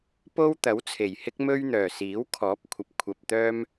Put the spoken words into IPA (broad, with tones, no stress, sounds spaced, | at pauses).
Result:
p o˥ w t̪ ɐ˨˥ w t͡sʰ e˨˩ j h ɪ˥ k̚ m ɵ˥ ɥ n̪ œː˨˩ s iː˨˥ w kʰ ɔː˨˥ p̚ kʷʰ ɐ˨ p̚ kʷʰ ɐ˧ p̚ t̪ œː˥ m